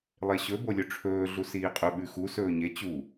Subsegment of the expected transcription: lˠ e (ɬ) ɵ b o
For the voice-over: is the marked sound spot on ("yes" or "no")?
no